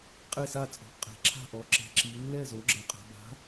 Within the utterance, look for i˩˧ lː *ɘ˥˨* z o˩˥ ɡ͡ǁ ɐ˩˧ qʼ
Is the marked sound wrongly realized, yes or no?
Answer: yes